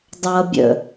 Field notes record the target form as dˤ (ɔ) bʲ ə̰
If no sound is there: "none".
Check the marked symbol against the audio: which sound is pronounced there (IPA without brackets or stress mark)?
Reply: ʌ